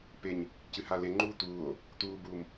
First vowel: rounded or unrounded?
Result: unrounded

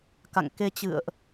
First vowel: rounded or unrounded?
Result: unrounded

